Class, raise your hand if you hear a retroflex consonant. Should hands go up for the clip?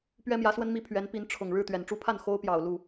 yes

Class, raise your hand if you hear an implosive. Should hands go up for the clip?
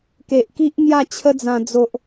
no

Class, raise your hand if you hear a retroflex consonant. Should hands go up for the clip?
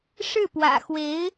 yes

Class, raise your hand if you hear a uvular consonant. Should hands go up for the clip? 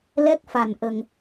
no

